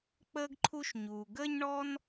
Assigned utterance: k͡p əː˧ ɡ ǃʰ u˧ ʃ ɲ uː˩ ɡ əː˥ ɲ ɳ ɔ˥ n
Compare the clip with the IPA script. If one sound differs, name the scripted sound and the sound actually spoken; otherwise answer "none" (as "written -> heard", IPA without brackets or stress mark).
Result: none